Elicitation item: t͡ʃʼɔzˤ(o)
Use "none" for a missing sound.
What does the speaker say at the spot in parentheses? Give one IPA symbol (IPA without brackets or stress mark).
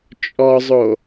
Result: o